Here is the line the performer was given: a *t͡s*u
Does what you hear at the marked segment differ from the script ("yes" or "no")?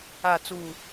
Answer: no